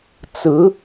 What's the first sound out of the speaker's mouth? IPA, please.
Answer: t͡s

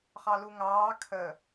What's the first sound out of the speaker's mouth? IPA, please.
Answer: χ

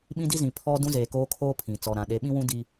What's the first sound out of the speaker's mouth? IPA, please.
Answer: ɓ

